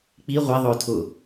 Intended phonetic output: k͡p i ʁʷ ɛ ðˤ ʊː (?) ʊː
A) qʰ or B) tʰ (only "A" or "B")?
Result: B